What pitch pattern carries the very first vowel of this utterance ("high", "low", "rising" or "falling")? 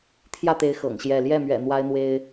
falling